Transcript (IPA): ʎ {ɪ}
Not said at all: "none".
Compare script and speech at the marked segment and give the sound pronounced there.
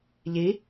i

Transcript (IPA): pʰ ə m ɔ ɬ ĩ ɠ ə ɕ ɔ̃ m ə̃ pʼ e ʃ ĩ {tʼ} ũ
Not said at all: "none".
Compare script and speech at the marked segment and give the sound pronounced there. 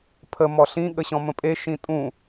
tʼ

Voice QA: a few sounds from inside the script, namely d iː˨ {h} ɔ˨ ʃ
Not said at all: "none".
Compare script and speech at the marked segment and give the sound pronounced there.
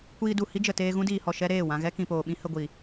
h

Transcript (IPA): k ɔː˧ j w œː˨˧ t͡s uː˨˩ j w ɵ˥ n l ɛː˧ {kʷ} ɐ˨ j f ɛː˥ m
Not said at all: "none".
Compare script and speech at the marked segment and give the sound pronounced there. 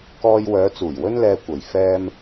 kʷ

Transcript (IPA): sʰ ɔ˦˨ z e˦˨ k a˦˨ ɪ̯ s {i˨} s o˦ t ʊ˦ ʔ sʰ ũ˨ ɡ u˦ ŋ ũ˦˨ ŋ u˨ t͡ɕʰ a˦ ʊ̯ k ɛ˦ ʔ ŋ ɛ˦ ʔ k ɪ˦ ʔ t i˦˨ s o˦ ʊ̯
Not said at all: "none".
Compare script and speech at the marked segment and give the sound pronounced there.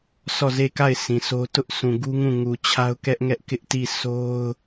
ĩ˨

